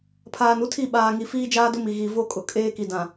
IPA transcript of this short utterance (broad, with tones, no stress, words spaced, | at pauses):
pʰaː˨nu˦tʰi˦˨ ɓaː˨ŋi˨ fiː˦d͡ʒaː˦dʊ˦ mi˨ ɣi˨ vo˦kʼʊ˨ kʼeː˦ki˨dã˨